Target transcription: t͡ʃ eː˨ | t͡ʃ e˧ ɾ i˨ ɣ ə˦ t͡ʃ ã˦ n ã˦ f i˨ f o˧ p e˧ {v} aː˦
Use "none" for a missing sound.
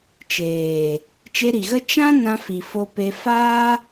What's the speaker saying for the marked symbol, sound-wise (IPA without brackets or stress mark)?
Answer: f